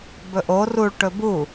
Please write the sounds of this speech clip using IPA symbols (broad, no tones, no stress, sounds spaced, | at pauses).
b ɵ ʔ o r u ɭ ʈ ɵ b u